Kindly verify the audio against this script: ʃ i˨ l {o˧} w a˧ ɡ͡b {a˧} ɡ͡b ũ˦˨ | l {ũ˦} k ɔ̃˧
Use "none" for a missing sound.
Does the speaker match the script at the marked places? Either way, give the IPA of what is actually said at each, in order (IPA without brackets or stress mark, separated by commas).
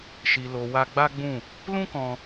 o˨, a˦, ũ˦